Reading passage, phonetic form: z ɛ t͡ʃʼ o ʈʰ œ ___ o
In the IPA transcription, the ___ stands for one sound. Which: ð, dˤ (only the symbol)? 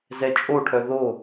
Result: ð